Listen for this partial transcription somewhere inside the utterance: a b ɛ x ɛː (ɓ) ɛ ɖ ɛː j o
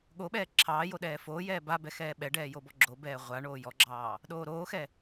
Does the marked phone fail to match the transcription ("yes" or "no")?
no